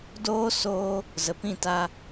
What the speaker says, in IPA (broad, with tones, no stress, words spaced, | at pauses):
doː˦ soː˦ | zə˨pĩ˦˨ta˧